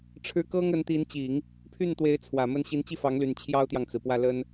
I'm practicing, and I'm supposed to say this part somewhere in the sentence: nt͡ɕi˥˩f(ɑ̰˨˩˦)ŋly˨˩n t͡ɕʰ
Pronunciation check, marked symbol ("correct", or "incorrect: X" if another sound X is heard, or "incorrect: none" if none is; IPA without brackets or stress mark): incorrect: ɑ˧˥